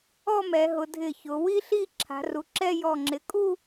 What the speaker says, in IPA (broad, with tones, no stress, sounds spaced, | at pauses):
ɔ˥˧ m ɛ˩˧ ɦ ʊ˩˧ dʱ ɪ˧˩ ç ʊ˩˧ w i˥ ɬ i˥˧ ǁʰ a̤˩˧ r u˩˧ ǁ ɛ˥˧ j ɔ˧˩ ŋ͡ǁ ɪ˩˧ kʼ u˥˧